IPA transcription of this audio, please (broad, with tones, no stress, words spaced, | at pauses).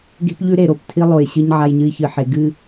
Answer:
ɡe̤˦pʎʉ˦ ɾe˨ɾo˨ptʰi˦ lˠo˨jɕɨ˦ɲ ʕa˦jɲɨ˦i̯çɨ˨ħe˨ ɡɨ˦˨